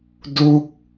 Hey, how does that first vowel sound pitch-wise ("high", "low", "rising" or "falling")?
falling